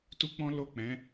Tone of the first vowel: high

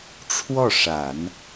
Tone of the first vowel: falling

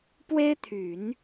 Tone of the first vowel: high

